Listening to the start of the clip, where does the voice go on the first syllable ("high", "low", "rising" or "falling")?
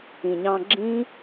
low